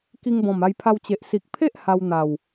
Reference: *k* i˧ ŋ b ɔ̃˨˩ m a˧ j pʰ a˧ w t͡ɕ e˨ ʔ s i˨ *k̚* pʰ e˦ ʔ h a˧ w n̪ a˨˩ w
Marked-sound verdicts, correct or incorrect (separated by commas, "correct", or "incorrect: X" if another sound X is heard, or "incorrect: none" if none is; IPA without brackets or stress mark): correct, correct